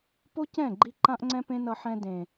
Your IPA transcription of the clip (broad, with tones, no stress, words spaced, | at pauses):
po˦cɛ̃˦˨ɡ͡ǃi˧ ǃã˦ʔŋ͡ǀɛ̃˦pẽ˦nʌ˧ ħɛ̃˧dẽ˨